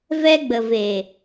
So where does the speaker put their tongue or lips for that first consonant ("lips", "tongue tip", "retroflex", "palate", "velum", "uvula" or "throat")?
lips